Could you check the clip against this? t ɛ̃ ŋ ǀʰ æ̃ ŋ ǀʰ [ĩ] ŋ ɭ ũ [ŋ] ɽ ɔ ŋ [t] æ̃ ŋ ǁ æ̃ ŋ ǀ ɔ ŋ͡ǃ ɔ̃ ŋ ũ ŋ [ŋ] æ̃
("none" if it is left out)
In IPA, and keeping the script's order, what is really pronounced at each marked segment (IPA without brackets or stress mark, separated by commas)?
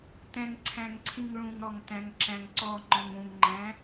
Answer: ĩ, ŋ, t, ŋ͡ǃ